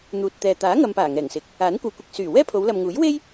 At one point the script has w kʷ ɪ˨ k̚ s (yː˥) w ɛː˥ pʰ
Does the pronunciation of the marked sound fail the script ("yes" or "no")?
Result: yes